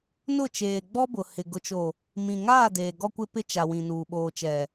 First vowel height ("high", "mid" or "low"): high